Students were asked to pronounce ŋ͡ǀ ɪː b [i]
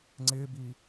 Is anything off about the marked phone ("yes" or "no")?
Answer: yes